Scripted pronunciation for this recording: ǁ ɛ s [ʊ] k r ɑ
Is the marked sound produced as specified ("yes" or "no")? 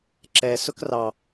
yes